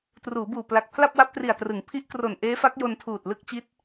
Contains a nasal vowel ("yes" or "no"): no